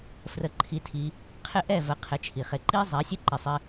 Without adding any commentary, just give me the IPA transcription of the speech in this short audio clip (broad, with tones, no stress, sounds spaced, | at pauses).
f r ə˧ ǃʰ i˧ tʰ i˧ | qʰ ɪ˦ ʔ ɛ˦˨ v ə˨˦ qʰ ɪ˨˦ t͡ʃʰ i˨ χ e˧ ǃ i˦ zˤ ɛ˨˦ sʲ e˦ ǃ i˨ sˤ ɪ˧